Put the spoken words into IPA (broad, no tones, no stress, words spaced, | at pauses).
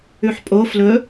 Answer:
ʉħpʼo flɵ